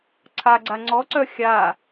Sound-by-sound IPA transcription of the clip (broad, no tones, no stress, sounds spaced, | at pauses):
ǀʰ a ɡ͡ǀ a ŋ͡ǀ ɔ ǀ œ xʲ a